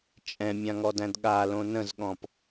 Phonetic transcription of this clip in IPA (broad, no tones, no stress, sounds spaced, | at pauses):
t͡ʃʼ ɛ̃ mʲ ã ŋ ɔ d æ̃ d ɠ a l õ n ə̃ z ɠ ɔ̃ p